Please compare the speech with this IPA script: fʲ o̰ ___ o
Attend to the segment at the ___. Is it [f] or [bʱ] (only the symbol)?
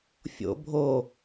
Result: bʱ